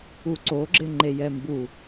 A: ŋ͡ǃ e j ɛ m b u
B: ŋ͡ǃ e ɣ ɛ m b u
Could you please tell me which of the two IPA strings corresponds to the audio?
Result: A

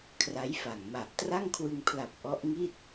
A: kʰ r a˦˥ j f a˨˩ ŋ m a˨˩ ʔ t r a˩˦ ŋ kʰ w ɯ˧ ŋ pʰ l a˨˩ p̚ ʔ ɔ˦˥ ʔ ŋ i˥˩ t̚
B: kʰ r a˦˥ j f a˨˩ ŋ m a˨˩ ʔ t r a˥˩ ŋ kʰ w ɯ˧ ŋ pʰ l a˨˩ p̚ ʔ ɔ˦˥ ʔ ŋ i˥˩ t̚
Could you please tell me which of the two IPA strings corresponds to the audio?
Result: B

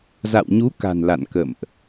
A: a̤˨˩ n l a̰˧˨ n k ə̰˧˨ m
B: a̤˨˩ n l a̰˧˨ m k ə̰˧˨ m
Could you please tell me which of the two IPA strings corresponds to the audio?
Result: A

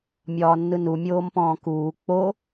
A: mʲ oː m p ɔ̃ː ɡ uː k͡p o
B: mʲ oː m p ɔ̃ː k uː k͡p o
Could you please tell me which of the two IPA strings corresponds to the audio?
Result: B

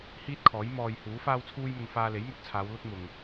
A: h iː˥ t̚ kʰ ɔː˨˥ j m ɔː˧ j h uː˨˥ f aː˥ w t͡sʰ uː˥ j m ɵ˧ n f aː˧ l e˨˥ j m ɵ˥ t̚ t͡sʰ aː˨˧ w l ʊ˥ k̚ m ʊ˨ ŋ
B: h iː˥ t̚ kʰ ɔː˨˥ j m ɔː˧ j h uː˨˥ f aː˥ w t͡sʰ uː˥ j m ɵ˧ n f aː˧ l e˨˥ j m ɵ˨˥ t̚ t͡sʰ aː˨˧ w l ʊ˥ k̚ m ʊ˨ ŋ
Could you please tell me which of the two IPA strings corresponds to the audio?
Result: B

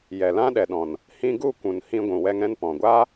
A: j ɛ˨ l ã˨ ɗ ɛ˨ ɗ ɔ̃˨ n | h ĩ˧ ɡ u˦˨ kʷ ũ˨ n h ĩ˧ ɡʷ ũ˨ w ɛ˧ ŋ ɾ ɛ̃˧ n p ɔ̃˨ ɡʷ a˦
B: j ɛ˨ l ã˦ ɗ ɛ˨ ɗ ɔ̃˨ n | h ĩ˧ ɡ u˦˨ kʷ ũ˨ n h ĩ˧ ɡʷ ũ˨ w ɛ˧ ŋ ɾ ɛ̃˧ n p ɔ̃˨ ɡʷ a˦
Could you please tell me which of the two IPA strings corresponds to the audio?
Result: B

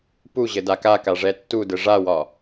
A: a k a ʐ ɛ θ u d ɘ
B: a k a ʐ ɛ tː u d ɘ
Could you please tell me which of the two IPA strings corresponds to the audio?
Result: B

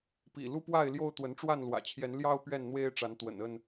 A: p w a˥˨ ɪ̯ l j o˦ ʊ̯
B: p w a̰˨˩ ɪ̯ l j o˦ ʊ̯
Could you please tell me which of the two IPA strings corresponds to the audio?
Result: A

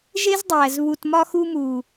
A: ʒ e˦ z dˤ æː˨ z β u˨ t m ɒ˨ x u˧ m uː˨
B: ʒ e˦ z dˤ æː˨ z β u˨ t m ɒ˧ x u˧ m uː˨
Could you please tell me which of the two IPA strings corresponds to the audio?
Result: B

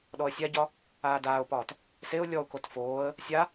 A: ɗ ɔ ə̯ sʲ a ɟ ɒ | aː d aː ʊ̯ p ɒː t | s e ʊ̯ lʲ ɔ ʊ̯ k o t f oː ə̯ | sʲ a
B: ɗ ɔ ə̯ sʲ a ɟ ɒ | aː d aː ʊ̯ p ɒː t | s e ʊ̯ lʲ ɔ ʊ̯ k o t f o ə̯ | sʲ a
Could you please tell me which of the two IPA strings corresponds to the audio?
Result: A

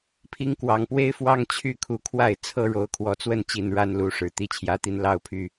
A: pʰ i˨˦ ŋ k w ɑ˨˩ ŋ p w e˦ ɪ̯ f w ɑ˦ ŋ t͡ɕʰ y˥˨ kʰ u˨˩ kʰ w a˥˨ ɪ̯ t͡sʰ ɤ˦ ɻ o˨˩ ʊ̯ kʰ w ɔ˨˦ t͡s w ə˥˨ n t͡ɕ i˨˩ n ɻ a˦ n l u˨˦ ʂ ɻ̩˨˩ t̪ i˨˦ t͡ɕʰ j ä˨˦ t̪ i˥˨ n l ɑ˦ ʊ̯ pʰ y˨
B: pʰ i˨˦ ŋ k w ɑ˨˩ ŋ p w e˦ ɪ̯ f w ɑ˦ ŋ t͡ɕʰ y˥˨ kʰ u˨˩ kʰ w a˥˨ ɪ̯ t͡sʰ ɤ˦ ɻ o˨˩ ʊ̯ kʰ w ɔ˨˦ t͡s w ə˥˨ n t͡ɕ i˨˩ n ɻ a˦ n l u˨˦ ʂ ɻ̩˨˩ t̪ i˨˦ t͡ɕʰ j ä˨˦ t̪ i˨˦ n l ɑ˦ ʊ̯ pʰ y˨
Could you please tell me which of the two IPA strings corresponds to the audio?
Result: B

